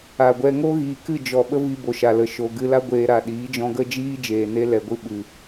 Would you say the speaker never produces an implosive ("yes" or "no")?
no